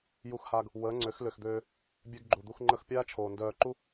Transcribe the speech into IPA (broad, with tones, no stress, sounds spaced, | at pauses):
j u˧ x h aː˧ ɡ | w əː˨˦ ŋ͡ǀ ø˨˦ x l ø˨ x d̪ øː˧ | bʲ ø˧ ɡ ɡ͡ǃ u˨ d̪ u˧ x ŋ͡ǃ ə˧ x pʲ aː˦ t͡ʃʰ oː˨ n d œː˨ ǃ u˧